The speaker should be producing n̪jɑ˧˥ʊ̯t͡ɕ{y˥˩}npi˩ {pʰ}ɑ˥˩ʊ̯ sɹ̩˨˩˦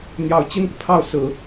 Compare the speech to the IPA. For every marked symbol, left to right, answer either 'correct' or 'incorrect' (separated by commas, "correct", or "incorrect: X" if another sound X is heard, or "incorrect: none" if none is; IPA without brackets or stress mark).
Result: incorrect: i˥˩, correct